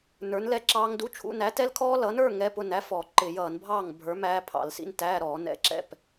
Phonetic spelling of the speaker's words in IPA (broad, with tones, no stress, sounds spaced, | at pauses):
n ə˞˨˥ n l ɛ˦˥ ǁ ɑː˦˥ ŋ d u˧˥˧ t͡ʃʰ ṵ˧˥˧ n æ˨˥ t ɛ˦˥ l kʰ ɔː˦˥ l ʌː˨˥ n ə˞˧˥˧ ŋ ɛ˧˥˧ p ʊ˥˨ n æ˧˥˧ f ɔ˧˩˧ ǃ ɪ˧˩˧ j ʌː˧˩˧ n bʱ ɑː˥˨ ŋ bʱ ə˞˨˥ m æː˦˥ pʰ ɑ̰˧˩˧ l s ḭ˧˥˧ n t æː˧˥˧ ɾ ɔː˧˩˧ n ɛ̰˧˥˧ ǁ ɛ̰˥˨ p